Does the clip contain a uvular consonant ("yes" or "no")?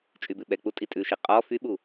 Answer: yes